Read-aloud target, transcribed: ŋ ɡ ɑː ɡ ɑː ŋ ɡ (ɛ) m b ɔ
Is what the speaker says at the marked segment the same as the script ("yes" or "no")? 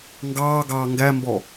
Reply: no